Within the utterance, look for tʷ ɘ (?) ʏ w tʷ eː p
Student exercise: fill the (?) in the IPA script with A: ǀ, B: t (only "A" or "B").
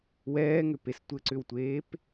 A